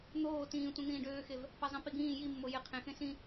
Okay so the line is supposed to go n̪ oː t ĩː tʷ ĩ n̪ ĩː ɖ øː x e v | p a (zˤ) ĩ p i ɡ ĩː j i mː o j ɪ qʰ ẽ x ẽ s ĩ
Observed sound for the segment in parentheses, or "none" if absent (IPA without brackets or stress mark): zˤ